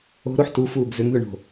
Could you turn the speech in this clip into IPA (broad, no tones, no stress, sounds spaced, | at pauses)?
o̤ ɾ o ħ t u f uː ɡ z ʏ ŋ ð ʏ ɳ o̤